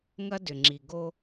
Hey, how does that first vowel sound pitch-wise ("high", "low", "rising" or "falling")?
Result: high